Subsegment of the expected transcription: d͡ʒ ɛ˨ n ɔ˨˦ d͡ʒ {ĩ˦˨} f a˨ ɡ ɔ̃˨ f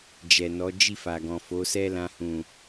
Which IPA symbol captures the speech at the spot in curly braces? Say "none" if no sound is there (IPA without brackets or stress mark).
i˦˨